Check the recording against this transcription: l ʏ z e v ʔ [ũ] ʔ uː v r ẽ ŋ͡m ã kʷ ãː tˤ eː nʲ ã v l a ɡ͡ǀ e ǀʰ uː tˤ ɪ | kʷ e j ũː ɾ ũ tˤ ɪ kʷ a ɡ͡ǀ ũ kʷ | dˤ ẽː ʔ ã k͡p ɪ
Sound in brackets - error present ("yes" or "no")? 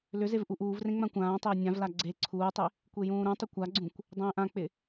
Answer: yes